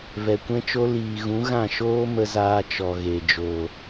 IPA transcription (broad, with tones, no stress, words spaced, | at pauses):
vɛ˨kʷɛ̃˦t͡ʃo˦ liː˨ɣũ˨˦ɣã˦˨ ʃoː˦mə˧zaː˧ t͡ʃɔ˨ɣe˨ d͡ʒoː˨